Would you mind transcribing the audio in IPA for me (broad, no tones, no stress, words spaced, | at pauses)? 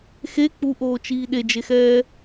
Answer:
xe k͡puʔoːt͡ʃiː ɗed͡ʒexɛː